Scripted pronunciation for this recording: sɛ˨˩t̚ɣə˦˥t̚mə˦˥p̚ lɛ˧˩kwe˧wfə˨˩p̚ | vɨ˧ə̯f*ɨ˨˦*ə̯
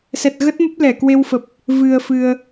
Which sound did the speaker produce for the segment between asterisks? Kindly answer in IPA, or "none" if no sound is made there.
ɨ˧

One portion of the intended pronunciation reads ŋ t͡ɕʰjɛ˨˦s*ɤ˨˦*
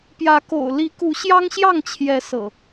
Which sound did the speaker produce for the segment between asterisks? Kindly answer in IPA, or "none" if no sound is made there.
ɤ̰˨˩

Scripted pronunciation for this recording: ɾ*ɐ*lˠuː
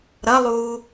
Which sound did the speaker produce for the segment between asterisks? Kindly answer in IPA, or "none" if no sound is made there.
ɐ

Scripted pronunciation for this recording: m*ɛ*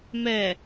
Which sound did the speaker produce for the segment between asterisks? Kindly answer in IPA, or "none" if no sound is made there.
ɛ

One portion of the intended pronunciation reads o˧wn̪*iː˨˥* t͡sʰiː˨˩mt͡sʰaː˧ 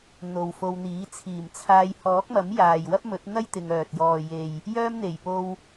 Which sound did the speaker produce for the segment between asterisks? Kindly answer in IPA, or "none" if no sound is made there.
iː˨˥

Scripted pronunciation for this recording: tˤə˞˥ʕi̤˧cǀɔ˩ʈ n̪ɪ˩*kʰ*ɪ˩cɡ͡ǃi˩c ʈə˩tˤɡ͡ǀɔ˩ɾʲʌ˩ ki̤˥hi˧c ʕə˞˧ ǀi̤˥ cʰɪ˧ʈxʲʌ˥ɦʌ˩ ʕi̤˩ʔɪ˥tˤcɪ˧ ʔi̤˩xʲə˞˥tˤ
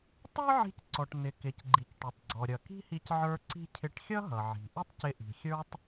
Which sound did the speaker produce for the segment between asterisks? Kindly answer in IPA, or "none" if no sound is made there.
k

